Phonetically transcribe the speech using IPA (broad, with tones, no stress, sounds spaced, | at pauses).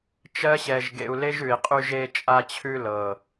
t͡ʃ ɜ˦ ɕ ɛ˧ ʒ ɡ ḛ˧ u̯ l e˦ ʒ ʉ˨ i̯ qʼ y˧ ʒ e˧ t͡ʃʼ a˧ t͡ɕʰ ʉ˧ l ɤ˨